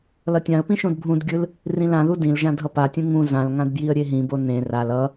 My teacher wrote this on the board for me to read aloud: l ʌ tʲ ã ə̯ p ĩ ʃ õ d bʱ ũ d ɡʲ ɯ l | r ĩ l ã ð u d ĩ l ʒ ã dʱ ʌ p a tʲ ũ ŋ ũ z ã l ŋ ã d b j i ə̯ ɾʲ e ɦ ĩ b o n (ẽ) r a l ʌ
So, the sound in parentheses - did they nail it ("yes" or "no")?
yes